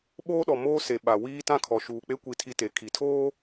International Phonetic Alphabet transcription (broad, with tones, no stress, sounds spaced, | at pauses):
ɓ oː˦ ɗ ɔ˨ m oː˦ s e˨ ɓ a˨ w iː˦ t ã˦ kʰ ɔ˨ ʃ uː˨ k͡p e˦ kʷ i˦ tʰ i˦ t e˨˦ kʰ i˨ tʰ oː˦